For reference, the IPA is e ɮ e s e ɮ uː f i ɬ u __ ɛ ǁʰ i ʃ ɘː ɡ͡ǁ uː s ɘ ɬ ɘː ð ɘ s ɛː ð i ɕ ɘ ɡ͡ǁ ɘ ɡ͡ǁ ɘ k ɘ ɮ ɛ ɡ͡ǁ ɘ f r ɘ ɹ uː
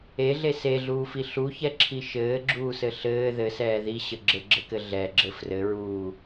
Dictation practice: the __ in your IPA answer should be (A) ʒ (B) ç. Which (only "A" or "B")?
B